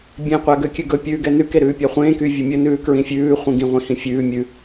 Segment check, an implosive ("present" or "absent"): absent